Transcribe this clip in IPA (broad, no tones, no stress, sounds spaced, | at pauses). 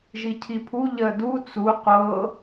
ʒ i cʰ i pʰ u ʎ ɜ d u t͡s u qʷ ɤ